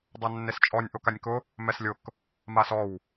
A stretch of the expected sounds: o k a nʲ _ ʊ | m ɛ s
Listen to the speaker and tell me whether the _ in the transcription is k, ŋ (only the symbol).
k